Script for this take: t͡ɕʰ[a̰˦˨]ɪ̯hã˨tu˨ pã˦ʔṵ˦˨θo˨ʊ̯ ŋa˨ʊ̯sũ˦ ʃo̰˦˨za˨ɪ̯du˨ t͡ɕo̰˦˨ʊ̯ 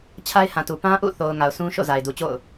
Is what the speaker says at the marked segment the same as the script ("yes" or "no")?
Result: no